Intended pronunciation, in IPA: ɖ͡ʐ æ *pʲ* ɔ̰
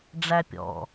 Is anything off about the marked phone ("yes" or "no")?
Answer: no